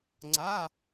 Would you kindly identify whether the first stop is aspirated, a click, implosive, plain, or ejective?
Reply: click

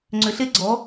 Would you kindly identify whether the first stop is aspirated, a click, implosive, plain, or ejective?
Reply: click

